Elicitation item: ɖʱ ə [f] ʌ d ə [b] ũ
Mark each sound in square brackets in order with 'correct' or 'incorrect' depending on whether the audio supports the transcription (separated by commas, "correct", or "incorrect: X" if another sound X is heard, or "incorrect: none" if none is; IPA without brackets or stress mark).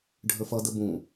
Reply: correct, correct